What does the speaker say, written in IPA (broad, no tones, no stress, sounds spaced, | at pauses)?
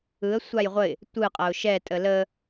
ɯ ə̯ sʷ a j ʁʷ ə ɪ̯ | tʷ ɯ qʼ ɐ ʊ̯ ʃ ɛ tʼ ə l ə